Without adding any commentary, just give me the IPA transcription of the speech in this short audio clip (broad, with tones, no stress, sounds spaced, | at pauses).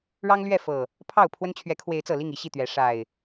ɻ ɑ˦ ŋ l ɥ ɛ˥˨ f ɤ˨˩ | pʰ ɑ˥˨ ʊ̯ pʰ w ə˦ n t͡ɕʰ ɥ ɛ˨˦ kʰ w e˨˦ ɪ̯ t͡s ɤ˨˩ l i˥˨ ŋ i˨˦ ɕ i˥˨ t̪ ɥ ɛ˨˦ ʂ a˨˩ ɪ̯